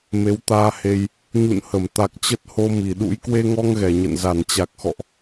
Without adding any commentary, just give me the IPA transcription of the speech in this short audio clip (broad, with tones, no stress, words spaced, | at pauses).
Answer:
me˨˦wt̪aː˧he˧j | ɲṵ˧˨nhə˧˩mt̪a˨˩k̚ t͡ɕə˦˥t̚ho˧mi˧˩ɗṵ˧˥j kwe˧ŋɔ˧ŋɣɛ˧˩ ɲə̰˧˨n za˧˩nt͡ɕa˨˩k̚xɔ̰˧˨ʔ